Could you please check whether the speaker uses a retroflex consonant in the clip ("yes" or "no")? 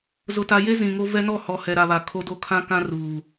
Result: no